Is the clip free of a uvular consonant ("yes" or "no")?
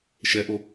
yes